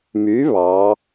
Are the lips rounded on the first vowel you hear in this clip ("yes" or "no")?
yes